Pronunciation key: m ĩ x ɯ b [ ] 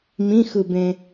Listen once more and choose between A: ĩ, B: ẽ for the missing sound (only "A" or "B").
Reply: B